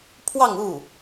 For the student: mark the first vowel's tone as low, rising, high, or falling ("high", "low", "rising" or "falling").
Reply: falling